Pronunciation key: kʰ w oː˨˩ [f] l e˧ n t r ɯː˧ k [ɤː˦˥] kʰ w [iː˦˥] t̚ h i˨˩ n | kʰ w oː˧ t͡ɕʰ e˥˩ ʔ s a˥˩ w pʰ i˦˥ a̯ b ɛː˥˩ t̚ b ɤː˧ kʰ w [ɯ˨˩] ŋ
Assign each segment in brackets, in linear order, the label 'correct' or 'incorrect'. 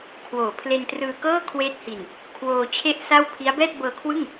incorrect, incorrect, incorrect, incorrect

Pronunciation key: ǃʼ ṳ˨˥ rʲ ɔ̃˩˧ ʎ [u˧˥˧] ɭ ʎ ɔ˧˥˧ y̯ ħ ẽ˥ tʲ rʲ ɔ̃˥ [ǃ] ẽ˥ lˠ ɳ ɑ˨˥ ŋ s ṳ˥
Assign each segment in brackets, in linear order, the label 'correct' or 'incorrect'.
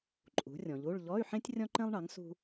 correct, correct

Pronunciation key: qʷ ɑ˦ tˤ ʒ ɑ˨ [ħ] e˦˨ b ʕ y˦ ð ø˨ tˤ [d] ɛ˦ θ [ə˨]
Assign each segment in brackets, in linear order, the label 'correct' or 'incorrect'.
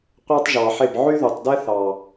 correct, correct, incorrect

